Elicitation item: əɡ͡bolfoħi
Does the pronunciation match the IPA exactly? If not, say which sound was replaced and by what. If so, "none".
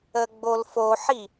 none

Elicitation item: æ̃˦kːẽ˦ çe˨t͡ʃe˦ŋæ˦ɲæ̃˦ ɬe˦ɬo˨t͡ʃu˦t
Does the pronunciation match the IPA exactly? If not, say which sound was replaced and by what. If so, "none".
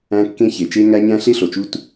none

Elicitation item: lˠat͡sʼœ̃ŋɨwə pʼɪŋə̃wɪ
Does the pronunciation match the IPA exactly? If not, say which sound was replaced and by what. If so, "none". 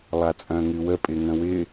none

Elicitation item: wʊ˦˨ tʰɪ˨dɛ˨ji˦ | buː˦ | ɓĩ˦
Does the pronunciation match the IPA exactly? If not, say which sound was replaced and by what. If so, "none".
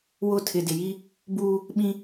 ɛ˨ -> ɪ˨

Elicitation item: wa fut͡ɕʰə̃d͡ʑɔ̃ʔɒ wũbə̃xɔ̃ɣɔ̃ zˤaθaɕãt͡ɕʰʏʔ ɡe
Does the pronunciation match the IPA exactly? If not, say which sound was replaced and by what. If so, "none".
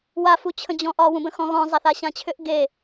none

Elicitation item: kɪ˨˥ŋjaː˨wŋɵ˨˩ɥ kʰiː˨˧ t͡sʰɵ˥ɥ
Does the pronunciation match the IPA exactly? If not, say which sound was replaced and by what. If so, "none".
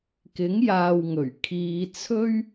none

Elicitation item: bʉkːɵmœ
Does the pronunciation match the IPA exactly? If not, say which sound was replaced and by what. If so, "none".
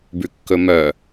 none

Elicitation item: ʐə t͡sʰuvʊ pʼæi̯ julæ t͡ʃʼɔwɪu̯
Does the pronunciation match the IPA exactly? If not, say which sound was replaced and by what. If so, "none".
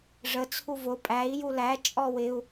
none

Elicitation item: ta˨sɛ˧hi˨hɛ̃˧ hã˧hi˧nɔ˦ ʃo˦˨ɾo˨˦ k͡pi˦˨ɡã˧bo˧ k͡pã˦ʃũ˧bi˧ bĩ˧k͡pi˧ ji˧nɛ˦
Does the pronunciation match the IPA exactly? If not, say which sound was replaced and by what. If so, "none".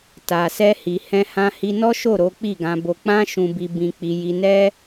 none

